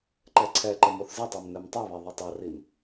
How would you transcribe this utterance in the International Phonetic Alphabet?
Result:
ǃ ɛ ǀʰ ɛ ǃ ɘ m o θ z ɨ tˤ e m n ɛ m tˤ e β e ðˤ ɐ tˤ ɐ r i m

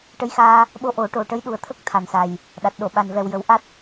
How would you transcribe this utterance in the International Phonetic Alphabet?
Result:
ʈ ə˧˥ j x aː˧ | ɓ o˧ ʔ o˨˩˦ ʈ o˨˩ ʈ ə˧˥ j ɗ u˨˩ ə̯ t̪ʰ ə˦˥ k̚ t̪ʰ a˨˩ n s a˨˩ j | ɗ a˨˩ t̚ ɗ o˨˩˨ ɓ a˨˩ n v ɛ˨˩ w j ə˨˩˦ w ʔ a˦˥ t̚

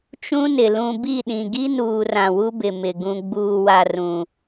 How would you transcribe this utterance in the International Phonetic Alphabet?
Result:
t͡ʃ ũ˦ n ɪ˨ l ũ˨ b i˦˨ ɗ ĩ˨ ɡ i˦ n uː˨ r ã˨ w u˦ b ɪ˨ m ɪ˨ ɡ ũ˨ ɡ͡b uː˨ w a˨ r ũ˨

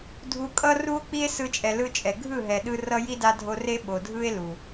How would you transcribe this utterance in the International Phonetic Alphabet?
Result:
dʱ u˧ kʼ ʌ˦ r u˦ o̯ k͡p i˦ e̯ s ɯ˦ t͡ʃʼ ɛ˧ l ɯ˦ t͡ʃʼ ɛ˨ ɡʱ ɯ˦˨ ɦ ɛ˨ ɗ ɯ˧ r ʌ˦ j i˦ d a˦ dʱ o˦ r e˦ ɓ o˨ dʱ ɯ˦ e̯ l u˨

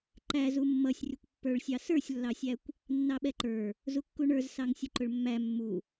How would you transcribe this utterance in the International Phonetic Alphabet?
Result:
ǃ æ z u mː ʌ sʲ rʲ ʊ kʷ pː ə˞ ɭ sʲ ɑ s ə˞ sʲ lː ɑ sʲ æ kʷ | nː ɑ ɓ ɛ ǃ ə˞ | z u kː u ɳ ə˞ z s ɑ ŋ sʲ ʊ ǃ ʊ ɭ mː æ mː u

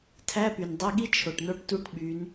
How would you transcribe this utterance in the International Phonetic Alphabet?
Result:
tʰ æ˧˥˧ p y˩ n dˤ e˧˥˧ ɠ i˥ t͡ʃʰ o˩ ʈ n o˥ ʈ t u˧˥˧ ʈ ɓ y˩˧ n

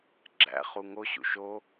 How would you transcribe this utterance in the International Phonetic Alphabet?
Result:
ɡ͡ǁ æ̰ χ u ŋ o ɕ ṵ ʃ o

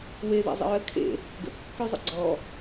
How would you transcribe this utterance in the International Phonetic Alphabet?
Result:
w e ð ḛ zˤ ə̰ ɹ ə kʰ ḛ | ɡ ə̰ kː y zˤ ə̰ ɡ͡ǀ ɔ

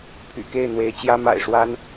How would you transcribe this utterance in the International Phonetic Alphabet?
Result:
pʰ y̰˨˩ k e˥˨ ɪ̯ n̪ w e˨˦ ɪ̯ t͡ɕ j ä˦ m a̰˨˩ ɪ̯ ʂ w a˦ n

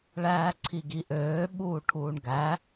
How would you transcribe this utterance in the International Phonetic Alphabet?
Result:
ɭ æː ǀʰ i ɡ i ʔ øː ɓ uː ʈʰ uː ɳ ɡ æ

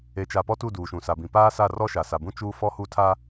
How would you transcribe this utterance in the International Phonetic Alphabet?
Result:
e˨ t͡ʃ a˨ p ɔ˦ t u˦˨ d uː˨ ʃ ũ˨ s a˨ b ĩ˨ p aː˦ s a˦˨ r ɔ˦ ʃ a˨ s a˨ b ũ˦ t͡ʃ uː˦ f ɔ˦ h u˦ tʰ a˦

